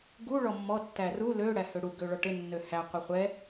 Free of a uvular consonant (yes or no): no